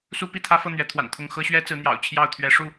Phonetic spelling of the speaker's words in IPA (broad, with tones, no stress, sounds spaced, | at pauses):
s u˦ p i˥˨ t̪ʰ ä˦ f ɤ˥˨ n̪ ɥ ɛ˨˦ t̪ʰ w a̰˨˩ n t̪ʰ ʊ˥˨ ŋ x ɤ˦ ɕ ɥ ɛ˦ t͡s ɹ̩˨˦ n̪ j ɑ̰˨˩ ʊ̯ t͡ɕʰ j ɑ˥˨ ʊ̯ t̪ʰ ɥ ɛ˨˦ ʂ u˥˨